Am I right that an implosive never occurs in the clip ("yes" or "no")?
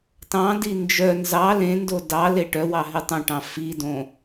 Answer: yes